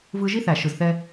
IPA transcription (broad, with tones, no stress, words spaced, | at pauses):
vɯ˦ ʒi˦θæ˨ ʃɯ˨zθɛ˦